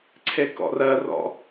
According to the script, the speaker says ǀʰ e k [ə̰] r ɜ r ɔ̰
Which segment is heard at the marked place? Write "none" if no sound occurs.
ɔ̰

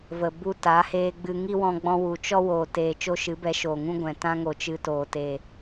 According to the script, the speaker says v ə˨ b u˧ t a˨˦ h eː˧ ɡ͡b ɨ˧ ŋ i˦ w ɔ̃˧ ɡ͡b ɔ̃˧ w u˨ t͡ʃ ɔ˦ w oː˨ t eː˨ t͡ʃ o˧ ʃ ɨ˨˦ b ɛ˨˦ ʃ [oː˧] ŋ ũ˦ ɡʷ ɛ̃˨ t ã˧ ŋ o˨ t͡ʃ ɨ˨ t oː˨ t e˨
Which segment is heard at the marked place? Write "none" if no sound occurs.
oː˨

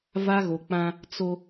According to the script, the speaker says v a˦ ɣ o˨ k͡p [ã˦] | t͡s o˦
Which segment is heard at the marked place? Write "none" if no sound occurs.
ã˦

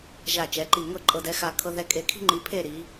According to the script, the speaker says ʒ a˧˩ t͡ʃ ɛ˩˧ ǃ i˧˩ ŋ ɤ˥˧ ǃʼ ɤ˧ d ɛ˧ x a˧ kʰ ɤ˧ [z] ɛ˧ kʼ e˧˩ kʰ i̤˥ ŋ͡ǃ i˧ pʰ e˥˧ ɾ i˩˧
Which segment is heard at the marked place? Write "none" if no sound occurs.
ð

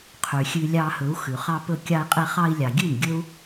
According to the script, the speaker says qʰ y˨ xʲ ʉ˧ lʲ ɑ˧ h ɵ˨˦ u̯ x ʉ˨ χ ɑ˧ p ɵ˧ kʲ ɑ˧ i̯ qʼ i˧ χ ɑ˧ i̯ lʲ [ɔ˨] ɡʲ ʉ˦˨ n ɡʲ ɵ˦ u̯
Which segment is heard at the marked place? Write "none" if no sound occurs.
ɑ˨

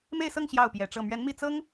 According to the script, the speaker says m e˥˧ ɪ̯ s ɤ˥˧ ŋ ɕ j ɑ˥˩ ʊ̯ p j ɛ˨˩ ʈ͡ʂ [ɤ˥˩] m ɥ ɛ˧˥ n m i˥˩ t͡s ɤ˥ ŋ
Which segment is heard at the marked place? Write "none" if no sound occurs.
ɤ˥˩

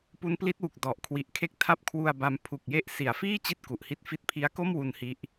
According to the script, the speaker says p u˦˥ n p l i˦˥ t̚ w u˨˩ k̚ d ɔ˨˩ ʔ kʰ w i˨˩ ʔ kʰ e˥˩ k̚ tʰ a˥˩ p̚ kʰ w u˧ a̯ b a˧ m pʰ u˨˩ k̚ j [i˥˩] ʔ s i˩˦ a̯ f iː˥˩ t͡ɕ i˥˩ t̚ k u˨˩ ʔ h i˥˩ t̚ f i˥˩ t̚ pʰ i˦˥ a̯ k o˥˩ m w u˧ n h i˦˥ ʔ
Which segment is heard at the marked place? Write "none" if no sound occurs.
e˥˩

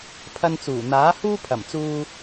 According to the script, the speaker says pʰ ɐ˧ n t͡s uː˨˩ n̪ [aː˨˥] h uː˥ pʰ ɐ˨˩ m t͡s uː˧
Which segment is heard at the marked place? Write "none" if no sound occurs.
aː˨˥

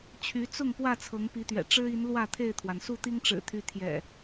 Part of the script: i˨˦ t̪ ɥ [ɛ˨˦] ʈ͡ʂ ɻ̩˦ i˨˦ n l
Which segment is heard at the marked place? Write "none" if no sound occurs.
ɛ̰˨˩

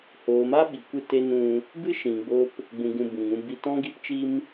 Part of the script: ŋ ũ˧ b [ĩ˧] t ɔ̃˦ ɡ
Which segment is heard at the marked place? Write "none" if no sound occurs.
i˧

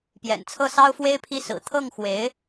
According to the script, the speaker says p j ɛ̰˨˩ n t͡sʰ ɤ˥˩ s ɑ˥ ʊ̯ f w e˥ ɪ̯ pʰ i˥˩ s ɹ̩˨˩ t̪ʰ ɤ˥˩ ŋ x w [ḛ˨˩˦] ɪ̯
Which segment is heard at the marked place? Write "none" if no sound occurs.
e˧˥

